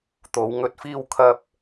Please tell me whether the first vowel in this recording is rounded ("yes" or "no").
yes